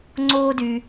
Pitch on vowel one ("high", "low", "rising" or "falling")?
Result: high